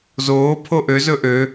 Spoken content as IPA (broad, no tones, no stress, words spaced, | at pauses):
zoː pʰoʔøzɵ ʔø